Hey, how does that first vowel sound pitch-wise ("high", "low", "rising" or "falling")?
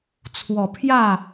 low